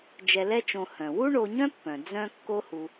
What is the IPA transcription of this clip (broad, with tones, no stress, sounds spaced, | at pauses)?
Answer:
d͡ʒ ɛ˧ l ɛ˥ t͡ʃ õ˧ h œ̃˩ w u˥ ɳ o˧ ɲ œ̃˥ pː œ̃˩ d͡z œ̃˧ kː o˥ h u˧